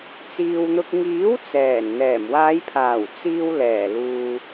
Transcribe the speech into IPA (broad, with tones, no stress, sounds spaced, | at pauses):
t͡s iː˨ w n̪ ʊ˧ k̚ ŋ iː˨˥ w t͡s ɛː˨˩ n n̪ ɛː˨˩ m w aː˨˧ j pʰ aː˨˩ w t͡s iː˧ w l ɛː˨˩ l uː˨